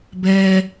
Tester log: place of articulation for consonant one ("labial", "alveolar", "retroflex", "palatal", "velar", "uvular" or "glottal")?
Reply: labial